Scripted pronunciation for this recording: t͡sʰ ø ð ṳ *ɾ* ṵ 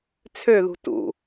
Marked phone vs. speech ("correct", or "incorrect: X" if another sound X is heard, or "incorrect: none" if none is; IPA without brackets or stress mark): incorrect: t